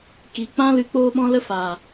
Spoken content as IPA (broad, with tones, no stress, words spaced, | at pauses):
ki˨ k͡pã˦lɨ˧ k͡poː˦ɓɔ̃˦ lə˦ faː˨